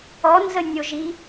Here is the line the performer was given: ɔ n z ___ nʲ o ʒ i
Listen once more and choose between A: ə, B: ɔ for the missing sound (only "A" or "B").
A